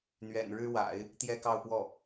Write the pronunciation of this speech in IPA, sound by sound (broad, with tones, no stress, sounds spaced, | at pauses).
n̪ ɥ ɛ̰˨˩ n ɻ ɻ̩˥ w a̰˨˩˦ ɪ̯ | t̪ j ɛ˥ k ɑ˥˧ ʊ̯ p w ɔ˥˩